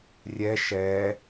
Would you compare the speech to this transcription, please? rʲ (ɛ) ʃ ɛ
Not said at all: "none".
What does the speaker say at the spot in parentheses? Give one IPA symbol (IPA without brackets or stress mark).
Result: ɛ